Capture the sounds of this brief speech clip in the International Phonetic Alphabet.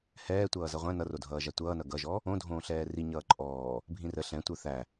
hɛːtʷʌː zʌʁʷæ̃ nʌrodʱʌːʒa tʷʌːnʌ ɡʌʒɔ | õdʱõːɬɛː ri ɲʌːǃʼɔː | bʱĩrə ɬɛ̃tʷə˞ θæ

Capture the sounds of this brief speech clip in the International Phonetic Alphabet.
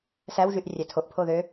sæwʒyʔ rʲætʰoʔpʰo ðø

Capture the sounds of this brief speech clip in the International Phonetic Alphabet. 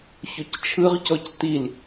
çoct͡ʃʰɯʁcɔc t̪il

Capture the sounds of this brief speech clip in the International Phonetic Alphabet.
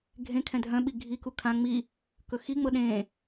ɡʱẽkʰɛ̃ dʱœ̃ɓi ɡʱiku kʰã ŋ͡mi | kɵxiŋ͡mɤ ɗẽ

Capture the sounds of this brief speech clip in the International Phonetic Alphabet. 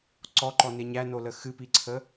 ǀɔǃɔne ɲænolə xɨpiǀʰə

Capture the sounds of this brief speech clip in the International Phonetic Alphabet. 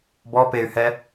bɔ pey̯hɛ

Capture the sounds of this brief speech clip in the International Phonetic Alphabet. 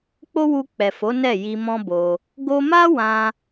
k͡po˦wu˧k͡pɛ˨fo˨˦ nɛ˦˨ji˧mɔ̃˦bo˧ | ɡo˧ma˦wã˧

